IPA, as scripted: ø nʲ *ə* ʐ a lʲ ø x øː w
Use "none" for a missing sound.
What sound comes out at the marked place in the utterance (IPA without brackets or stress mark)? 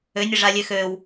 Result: ə